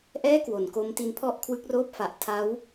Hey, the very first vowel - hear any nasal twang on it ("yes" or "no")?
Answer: no